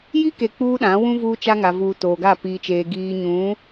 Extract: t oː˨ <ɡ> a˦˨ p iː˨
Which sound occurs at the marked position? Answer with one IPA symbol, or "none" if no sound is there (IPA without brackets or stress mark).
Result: ɡ